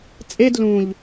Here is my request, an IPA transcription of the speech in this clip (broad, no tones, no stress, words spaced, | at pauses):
t͡sʼed lũʎ